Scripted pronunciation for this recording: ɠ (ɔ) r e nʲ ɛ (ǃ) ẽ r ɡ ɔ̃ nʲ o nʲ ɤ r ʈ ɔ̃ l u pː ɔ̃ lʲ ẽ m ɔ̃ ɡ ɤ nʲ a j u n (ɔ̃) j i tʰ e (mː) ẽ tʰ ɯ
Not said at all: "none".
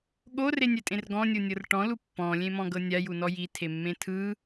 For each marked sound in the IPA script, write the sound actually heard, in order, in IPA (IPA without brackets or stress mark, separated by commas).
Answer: o, tʼ, ɔ, mː